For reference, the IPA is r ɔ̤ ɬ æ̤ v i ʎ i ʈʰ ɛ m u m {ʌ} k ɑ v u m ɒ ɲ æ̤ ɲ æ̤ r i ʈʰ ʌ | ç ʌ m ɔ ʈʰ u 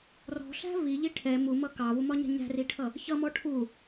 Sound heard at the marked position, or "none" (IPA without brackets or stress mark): ʌ